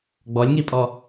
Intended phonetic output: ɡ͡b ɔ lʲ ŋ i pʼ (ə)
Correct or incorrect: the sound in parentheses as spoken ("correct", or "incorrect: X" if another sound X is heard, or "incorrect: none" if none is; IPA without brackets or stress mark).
incorrect: ɔ